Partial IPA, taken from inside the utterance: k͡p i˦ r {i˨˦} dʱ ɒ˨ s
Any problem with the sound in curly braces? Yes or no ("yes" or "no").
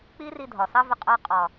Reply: yes